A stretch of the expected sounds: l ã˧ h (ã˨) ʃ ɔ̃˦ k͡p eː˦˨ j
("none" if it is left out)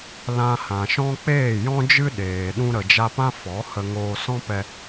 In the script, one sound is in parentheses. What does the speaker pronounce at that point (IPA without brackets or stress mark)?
ã˨